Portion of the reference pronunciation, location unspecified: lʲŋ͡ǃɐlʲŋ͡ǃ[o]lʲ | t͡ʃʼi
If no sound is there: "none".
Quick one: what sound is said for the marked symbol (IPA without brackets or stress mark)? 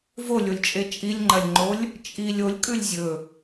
o